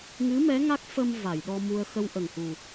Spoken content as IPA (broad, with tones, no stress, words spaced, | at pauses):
ŋɨ˧˥mɛ˧˥ ŋa˦˥k̚fə˧m va˨˩˨jɗɔ˧mu˧ə̯ xə˧wʔə˨˩ŋhu˨˩